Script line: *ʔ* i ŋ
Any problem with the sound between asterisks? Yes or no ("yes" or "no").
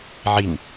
yes